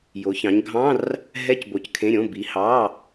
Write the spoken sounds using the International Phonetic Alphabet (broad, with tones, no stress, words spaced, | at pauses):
jo˩˧çɑ̃˩˧ɲɡʱɑ̃˧˥˧r | ɦɛ˧˥˧cbo˩˧ckʰẽ˩˧˩ɾʲõ˩˧˩ bi˩˧ hɑ˩˧˩